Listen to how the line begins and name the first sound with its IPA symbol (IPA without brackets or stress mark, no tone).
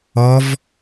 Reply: ɔ